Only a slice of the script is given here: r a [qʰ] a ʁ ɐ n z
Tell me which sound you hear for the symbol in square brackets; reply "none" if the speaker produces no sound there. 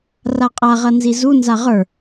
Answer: qʼ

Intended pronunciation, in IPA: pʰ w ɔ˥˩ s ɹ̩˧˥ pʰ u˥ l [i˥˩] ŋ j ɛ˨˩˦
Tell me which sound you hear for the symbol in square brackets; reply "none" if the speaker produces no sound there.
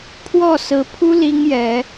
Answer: i˥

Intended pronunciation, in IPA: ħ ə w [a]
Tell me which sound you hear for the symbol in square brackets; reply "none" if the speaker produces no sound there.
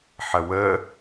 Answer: ə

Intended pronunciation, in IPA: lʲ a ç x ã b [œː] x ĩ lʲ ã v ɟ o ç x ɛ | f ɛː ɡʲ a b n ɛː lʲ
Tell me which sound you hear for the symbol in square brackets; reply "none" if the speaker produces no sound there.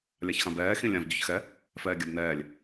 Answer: ɛː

